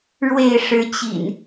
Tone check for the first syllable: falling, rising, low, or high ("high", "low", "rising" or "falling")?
falling